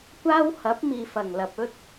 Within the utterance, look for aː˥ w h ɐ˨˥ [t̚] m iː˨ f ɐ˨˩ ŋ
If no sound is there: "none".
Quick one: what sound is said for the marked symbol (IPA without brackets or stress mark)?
p̚